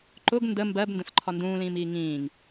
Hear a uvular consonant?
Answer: no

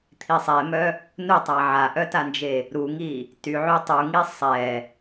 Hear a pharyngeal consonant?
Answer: yes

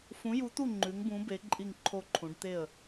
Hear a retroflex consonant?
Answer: yes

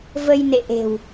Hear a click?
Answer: no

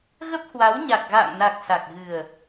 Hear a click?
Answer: no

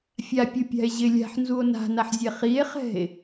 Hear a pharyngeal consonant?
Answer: yes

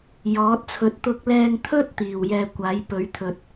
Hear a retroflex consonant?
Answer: no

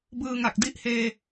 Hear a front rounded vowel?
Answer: no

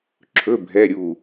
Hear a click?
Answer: yes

